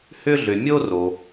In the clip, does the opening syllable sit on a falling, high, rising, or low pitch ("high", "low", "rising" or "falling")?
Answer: high